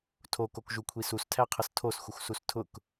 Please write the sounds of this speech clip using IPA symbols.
tʰ o k o k ʒ u kʷʰ i s u s tʰ æ qʰ ə s tʰ o s xʷ ə xʷ s u s tʰ ʊ k

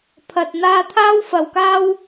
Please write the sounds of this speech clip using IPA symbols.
pʰ ɐ˧ t̚ n̪ aː˧ t̪ʰ aː˥ w f ɐ˨˧ w k aː˥ w

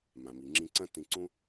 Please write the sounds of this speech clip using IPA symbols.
m ã˩ m i˩ ŋ͡ǁ ĩ˧ ǀ ɐ̃˥ t ĩ˧ ǀ ũ˥

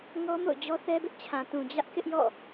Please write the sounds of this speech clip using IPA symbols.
ŋ ɔ˦ m o̰˦˨ ʊ̯ d͡ʑ ɔ˦ θ ɛ˦ b ɪ˦ ʔ t͡ɕʰ ã˨ t ũ˨ d͡ʑ ä˦ ʔ k ɪ˦ ʔ j ɔ̰˦˨

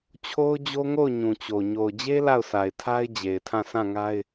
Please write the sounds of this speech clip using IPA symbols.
t͡ɕʰ o˦ ʊ̯ d͡ʑ o˦ ŋ o˦˨ ʊ̯ ɲ ũ˨ t͡ɕ o˨ ɲ o˨ ʊ̯ d͡ʑ e˦ l a˦˨ ʊ̯ sʰ a˨ ɪ̯ tʰ a˦ ɪ̯ d͡ʑ e˨ ɪ̯ tʰ ã˦˨ sʰ ã˦˨ ŋ a˦ ɪ̯

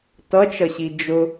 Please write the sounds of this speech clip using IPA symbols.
t ʌ t͡ʃ ʌ ɕ i d͡ʒ ʊ

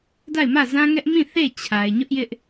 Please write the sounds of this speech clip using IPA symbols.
d a˦˨ ɪ̯ m ä˦˨ z ã˦ ŋ ɛ˦ ʔ m ĩ˦˨ θ e˦˨ t͡ɕʰ a˨ ɪ̯ ɲ ʊ˦ ʔ j ɪ˦ ʔ

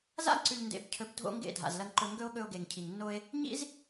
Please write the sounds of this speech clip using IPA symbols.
z a̰˦ ǀ ʉ˨ ʎ n d ḛ˨ b cʰ ɵ˨˦ b dʱ o̰˦ ŋ ɡ ḛ˦˨ dʱ a̰˨ z l ɐ˧ ŋ ǃ ɵ˧ ŋ ɡ ɵ˦ o̯ ɠ ɵ˧ o̯ ɡ e˨ ŋ cʰ i˨ ŋ nː o˦ e̯ | ɲ ḭ˦ z

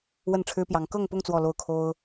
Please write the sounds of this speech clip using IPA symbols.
w ə˥˩ n ʈ͡ʂʰ ɻ̩˥ p j ɑ˧˥ ŋ k ɤ˥˧ ŋ p ʊ˥˧ ŋ t͡s w ɔ˥˧ l o˥˩ ʊ̯ kʰ o˥ ʊ̯

